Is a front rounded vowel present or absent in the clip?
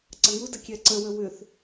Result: present